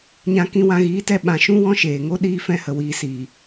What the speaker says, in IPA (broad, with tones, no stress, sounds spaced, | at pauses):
ɲ ã˧ k ĩ˧ w ã˧ ɣ iː˨˦ t ɛ˧ ɓ ã˨ ʃ ũ˦ w ɔ̃˦ ʃ eː˨ ŋ o˦ ɗ iː˦ f ɛ̃˧ h ə˨ w iː˨ s iː˨